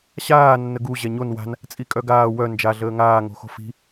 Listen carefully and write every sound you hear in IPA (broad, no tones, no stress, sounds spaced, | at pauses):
ɕ aː nː ə ɡ u ʑ ɛ ɲ o n w a̤ n | t͡sʼ i kʼ œ ɡ aː w œ n d͡ʒ a ɮ əː ŋ aː ŋ o̤ x o̤ f i̤